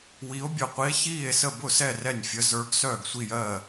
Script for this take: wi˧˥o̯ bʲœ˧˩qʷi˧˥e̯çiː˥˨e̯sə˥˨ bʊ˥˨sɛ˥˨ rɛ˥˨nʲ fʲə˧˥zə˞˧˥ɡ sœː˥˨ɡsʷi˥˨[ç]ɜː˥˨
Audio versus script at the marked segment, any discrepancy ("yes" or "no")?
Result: yes